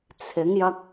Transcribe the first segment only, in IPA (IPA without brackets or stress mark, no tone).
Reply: t͡sʰ